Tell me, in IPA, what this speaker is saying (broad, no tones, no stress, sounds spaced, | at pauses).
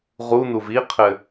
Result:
ʁ u n u v i qʰ ɘ